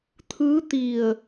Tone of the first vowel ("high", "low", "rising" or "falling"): rising